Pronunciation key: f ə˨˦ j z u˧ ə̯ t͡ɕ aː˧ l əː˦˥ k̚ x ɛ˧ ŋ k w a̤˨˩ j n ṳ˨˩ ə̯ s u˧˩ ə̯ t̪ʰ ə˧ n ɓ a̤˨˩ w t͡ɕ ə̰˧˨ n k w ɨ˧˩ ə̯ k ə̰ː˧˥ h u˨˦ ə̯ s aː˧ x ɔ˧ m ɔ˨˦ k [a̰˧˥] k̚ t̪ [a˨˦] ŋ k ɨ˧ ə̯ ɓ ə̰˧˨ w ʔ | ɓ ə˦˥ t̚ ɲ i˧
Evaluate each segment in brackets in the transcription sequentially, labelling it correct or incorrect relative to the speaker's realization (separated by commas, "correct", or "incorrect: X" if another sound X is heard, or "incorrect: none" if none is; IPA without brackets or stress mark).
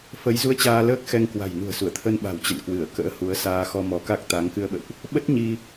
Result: incorrect: a˦˥, correct